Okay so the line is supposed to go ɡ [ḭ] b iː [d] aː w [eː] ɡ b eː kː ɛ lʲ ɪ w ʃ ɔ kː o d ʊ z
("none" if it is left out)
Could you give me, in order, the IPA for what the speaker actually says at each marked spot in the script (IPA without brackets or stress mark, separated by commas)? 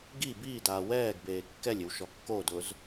i, d, ɛː